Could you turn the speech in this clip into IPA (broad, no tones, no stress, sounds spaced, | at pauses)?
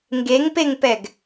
ŋ ɡ e ŋ p e ŋ p ɛ ɡ